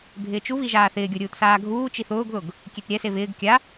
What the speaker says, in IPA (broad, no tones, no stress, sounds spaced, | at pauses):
bʱ ɪː t͡ʃ u β i ʒ aː θ ɪː ɡʲ o ɾʲ uː t s aː ɡʱ uː t͡ʃ i θ ʊː ɡ ð ʊ ɡ | kʲ e t ɾʲ ɛ s e β ɪː ɡ kʲ a